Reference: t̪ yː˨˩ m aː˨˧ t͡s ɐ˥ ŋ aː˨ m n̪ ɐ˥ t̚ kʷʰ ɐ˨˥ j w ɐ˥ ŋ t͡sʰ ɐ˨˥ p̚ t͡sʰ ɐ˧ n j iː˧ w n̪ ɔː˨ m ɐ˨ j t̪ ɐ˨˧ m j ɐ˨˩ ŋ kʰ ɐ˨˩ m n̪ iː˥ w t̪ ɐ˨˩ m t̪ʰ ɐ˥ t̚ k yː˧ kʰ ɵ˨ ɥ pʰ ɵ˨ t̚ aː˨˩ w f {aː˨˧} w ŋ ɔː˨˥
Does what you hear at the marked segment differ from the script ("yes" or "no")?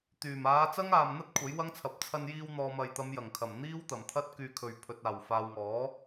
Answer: yes